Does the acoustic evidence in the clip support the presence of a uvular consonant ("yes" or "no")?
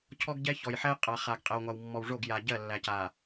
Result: yes